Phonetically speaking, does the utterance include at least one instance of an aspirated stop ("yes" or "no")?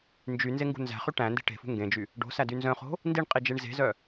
no